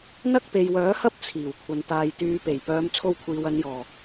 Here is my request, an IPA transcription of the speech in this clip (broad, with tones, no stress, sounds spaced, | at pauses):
n̪ ɐ˥ k̚ p e˨ j w œː˨˥ h ɐ˥ p̚ t͡sʰ iː˨˩ w kʷʰ ɐ˨ n t̪ aː˨ j t̪ yː˨˧ p e˨˩ j p œː˨˧ m t͡sʰ o˧ w kʷʰ iː˨ w ɐ˨˧ n j ɔː˨˩